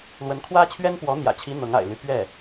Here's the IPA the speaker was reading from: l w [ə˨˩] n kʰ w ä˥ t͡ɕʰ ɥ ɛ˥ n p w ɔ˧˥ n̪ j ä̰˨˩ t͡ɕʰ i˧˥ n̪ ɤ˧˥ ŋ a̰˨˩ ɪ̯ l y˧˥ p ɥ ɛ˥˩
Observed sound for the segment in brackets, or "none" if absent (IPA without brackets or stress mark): ə˧˥